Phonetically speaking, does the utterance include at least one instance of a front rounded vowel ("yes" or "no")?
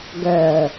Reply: yes